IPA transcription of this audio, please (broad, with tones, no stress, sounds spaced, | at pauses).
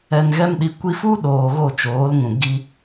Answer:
ɛ˨ n ɣ ɛ˧ m ɗ i˨ kʷ i˧ f u˦ ɗ oː˨ ɣ o˦˨ t͡ʃ oː˨˦ l ŋ ũ˨ ɡ i˧